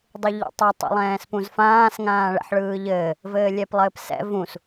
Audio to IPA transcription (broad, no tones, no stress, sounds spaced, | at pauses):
dˤ ɯ ʎ ḭ tˤ ɛ tˤ ḭ lˠ ɛ̃ː s p ũ z f ãː s ŋ ãː ɭ ɛ̰ ħ ɭ ɯː ʎ ɘː | v ɘː lʲ ɛ p lˠ ɘː p s ɛ̰ v ũ s